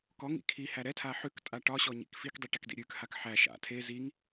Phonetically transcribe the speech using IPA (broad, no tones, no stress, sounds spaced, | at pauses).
k ɔ ŋ ḭ kʰ i h æ ɾ ɛ tʰ a ħ ʉ k tʼ a ʈ ɒ ɕ ɔ ɲ ḭ k f i k dˤ i ʈ ɛ k d ḭ ɾʲ ʉ k h a k ħ æ ʃ a̰ tʰ e z i ŋ